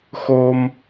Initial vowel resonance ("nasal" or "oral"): oral